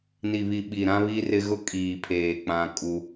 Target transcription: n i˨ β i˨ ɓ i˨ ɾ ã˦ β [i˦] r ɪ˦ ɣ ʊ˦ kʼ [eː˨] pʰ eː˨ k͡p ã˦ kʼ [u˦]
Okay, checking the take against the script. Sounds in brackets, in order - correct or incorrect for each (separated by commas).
correct, incorrect, correct